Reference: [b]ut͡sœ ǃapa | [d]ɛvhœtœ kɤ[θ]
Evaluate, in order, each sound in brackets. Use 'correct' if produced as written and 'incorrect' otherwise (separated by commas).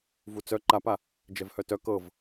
incorrect, incorrect, incorrect